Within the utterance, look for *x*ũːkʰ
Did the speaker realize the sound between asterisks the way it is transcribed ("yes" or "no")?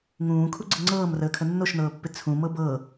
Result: no